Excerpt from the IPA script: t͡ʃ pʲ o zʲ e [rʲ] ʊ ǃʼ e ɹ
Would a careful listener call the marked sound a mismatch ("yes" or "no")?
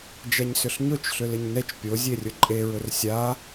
no